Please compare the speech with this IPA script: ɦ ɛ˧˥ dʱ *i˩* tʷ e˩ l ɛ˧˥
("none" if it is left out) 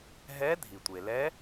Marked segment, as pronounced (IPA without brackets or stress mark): i˩